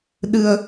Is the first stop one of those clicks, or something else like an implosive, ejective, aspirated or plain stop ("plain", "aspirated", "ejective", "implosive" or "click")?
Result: implosive